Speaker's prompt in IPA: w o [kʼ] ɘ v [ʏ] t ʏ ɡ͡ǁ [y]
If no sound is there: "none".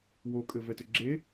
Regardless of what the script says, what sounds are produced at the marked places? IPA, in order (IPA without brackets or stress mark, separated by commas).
kʼ, ɛ, e